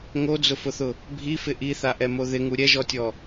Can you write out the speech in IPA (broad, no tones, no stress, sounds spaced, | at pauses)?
ŋ o d͡z ʊ f ʊ θ ʊ | bʱ i f ɪ ʔ i θ a ʔ ɛ m o ð ɪ ŋ u ɾʲ ɛ ʒ ɔ tʲ ɔ